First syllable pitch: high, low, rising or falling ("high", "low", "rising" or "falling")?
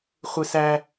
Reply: high